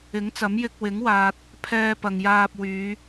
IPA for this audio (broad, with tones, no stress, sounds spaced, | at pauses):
ɪ˨˥ ŋ t͡s ɐ˨˥ m j ɪ˧ k̚ w ɪ˨˥ ŋ w aː˨ t̚ | pʰ ɛː˧ p ɐ˨ ŋ j aː˧ p̚ w yː˨˧